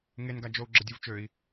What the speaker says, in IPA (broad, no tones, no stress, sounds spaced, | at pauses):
ŋ e n ɡ a d͡ʒ o u̯ ɡ͡ǁ ə dʲ u v t͡ʃ ø i̯